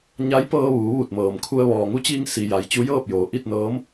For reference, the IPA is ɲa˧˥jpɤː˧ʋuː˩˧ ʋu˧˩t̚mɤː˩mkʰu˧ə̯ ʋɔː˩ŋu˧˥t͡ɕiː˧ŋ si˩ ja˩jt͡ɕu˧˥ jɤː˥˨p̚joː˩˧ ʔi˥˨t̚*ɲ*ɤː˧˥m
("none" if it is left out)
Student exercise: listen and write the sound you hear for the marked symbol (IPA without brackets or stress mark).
n